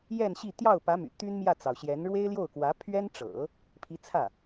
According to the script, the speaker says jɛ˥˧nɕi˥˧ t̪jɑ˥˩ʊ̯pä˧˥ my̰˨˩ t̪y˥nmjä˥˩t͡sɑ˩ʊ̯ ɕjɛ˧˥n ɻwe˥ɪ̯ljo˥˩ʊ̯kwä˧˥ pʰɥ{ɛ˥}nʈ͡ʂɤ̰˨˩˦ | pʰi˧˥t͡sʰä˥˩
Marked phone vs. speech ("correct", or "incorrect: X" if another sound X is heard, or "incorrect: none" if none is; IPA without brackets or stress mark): correct